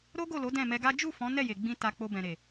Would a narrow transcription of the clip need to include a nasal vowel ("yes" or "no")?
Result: yes